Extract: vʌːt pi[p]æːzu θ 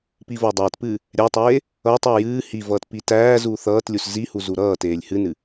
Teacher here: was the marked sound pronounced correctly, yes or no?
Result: no